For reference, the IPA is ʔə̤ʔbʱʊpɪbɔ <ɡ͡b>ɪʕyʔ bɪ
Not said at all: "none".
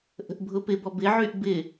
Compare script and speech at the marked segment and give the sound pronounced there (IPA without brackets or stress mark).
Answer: b